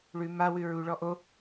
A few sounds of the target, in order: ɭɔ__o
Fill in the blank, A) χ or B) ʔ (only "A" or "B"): B